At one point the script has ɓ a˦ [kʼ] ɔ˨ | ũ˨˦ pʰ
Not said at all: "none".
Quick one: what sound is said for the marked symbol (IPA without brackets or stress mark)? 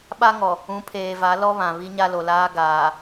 ŋ